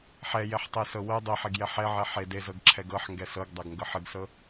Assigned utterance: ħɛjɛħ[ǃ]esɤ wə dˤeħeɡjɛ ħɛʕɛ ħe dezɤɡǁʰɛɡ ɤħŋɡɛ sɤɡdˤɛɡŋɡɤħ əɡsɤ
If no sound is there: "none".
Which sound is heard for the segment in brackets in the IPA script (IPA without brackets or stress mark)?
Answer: tˤ